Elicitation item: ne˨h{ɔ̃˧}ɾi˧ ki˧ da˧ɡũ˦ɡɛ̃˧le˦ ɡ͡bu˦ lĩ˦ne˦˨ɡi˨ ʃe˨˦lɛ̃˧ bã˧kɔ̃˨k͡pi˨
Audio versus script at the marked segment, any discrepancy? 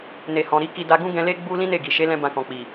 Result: yes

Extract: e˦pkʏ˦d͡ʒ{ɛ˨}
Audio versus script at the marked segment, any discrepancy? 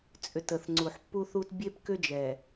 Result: no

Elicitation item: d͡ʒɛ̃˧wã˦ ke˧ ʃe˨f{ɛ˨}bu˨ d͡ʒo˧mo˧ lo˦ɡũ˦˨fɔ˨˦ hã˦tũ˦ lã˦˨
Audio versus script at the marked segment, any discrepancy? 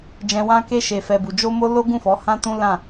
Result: no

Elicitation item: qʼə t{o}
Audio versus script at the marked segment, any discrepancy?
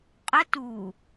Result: yes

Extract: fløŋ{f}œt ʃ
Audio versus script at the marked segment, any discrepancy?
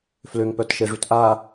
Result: yes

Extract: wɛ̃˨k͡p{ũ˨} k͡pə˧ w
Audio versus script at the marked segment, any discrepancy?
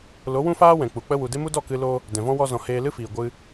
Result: yes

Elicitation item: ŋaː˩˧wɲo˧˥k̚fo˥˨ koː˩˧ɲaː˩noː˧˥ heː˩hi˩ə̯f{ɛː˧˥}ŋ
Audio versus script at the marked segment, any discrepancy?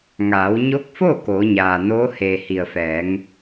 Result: yes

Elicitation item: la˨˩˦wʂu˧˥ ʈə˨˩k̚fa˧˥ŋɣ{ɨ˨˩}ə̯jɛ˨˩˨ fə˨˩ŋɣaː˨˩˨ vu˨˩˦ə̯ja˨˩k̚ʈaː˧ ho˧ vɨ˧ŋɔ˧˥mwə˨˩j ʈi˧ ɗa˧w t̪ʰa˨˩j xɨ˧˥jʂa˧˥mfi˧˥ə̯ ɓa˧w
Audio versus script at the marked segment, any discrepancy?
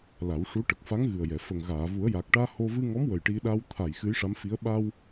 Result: no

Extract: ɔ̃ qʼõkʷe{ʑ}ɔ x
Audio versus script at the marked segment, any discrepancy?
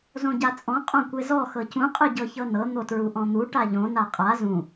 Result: yes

